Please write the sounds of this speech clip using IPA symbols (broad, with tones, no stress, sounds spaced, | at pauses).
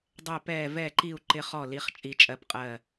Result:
dˤ ɛ˨˩ p ɛː˨˩ v ɛ˨˩ ǃ i˨˩ u̯ ǃ ɪ˨˩ χ ɔ˨˩ l i˩˧ χ t͡ʃʼ i˩˧ t͡ʃʼ ɜ˨˩ p qʼ ɜ˨˩